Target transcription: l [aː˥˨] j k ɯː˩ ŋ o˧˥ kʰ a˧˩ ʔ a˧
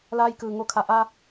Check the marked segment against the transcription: incorrect: aː˧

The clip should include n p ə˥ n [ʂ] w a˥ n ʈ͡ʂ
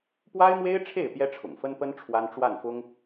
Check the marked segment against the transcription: incorrect: ʈ͡ʂʰ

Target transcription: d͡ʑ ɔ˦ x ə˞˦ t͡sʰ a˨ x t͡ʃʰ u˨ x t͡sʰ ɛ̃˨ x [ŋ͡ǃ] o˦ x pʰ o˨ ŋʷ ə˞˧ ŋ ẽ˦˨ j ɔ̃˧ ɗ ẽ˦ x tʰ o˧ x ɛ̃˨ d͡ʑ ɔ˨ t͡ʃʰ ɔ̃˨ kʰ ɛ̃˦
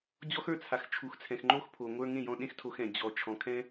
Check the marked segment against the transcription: correct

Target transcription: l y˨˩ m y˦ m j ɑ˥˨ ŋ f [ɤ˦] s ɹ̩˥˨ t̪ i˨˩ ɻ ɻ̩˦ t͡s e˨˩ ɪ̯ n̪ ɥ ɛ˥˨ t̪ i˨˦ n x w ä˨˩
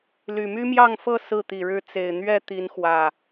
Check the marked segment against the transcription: incorrect: ɤ˥˨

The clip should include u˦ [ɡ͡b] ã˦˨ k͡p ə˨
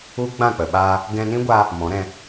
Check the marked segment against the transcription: correct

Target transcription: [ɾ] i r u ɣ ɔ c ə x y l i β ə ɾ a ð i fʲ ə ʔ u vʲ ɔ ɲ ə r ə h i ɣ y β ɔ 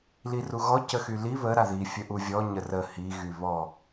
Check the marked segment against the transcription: incorrect: l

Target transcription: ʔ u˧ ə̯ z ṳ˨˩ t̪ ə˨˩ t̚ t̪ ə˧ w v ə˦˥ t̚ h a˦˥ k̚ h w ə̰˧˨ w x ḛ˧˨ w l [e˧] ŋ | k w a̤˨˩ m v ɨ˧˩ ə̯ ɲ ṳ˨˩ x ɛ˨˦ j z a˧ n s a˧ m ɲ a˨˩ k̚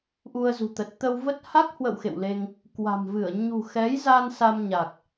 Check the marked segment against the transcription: correct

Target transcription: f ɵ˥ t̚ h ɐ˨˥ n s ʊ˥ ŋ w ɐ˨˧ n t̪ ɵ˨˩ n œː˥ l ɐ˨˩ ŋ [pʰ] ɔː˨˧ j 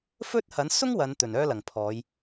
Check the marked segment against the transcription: correct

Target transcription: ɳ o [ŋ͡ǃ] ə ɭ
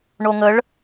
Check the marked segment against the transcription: incorrect: ŋ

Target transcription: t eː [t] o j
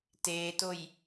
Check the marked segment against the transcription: correct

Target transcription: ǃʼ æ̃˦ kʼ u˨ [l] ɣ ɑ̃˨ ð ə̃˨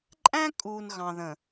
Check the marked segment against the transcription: incorrect: n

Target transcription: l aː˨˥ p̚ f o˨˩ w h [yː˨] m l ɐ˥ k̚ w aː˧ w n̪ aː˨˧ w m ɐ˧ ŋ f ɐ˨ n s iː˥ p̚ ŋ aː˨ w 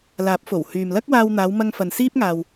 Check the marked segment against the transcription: correct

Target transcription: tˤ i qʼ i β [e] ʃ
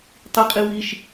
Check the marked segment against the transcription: incorrect: i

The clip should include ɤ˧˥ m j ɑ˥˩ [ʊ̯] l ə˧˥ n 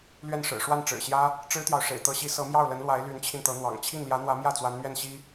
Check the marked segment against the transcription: correct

